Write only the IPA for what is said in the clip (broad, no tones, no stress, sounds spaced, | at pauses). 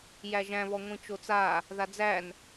j æ ʒ æ̃ β ɔ ŋʷ ĩ t͡ʃ o t͡s a | ð a d͡z æ n